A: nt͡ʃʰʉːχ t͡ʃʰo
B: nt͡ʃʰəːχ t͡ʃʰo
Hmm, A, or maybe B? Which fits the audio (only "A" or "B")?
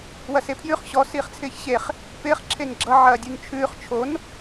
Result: A